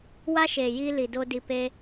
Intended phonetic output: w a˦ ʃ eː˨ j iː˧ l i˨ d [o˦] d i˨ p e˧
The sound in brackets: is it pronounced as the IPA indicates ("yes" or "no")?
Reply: yes